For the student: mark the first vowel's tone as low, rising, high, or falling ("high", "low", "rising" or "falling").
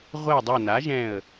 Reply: falling